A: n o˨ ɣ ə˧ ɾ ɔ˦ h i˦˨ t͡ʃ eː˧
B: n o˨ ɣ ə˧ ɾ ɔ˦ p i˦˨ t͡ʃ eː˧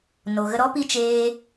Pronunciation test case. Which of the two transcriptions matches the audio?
B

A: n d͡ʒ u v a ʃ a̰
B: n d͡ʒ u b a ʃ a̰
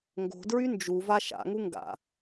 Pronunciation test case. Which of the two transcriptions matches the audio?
A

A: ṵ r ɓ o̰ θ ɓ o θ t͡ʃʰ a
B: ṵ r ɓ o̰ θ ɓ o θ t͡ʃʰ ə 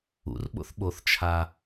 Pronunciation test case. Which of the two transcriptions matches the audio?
A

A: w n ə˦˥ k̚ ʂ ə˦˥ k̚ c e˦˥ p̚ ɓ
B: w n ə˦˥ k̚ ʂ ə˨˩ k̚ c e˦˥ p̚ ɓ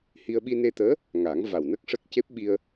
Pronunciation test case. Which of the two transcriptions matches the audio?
A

